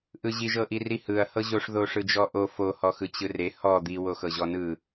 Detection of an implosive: absent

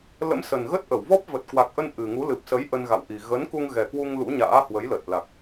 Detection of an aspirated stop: absent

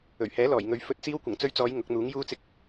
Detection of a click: absent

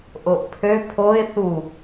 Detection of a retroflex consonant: absent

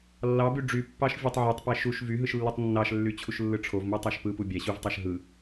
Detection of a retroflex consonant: present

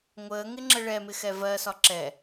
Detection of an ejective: absent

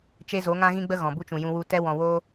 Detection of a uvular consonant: absent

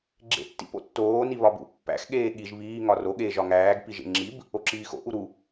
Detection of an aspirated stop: absent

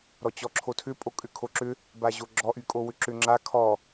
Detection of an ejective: present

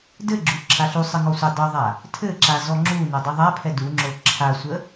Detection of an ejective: absent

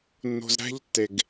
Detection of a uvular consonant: absent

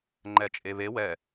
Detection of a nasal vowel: absent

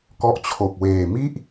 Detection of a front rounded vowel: absent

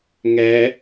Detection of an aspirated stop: absent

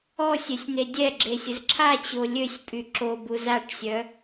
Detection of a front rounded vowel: present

